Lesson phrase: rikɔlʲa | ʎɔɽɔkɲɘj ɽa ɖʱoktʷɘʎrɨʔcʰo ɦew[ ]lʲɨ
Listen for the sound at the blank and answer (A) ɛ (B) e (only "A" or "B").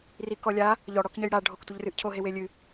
B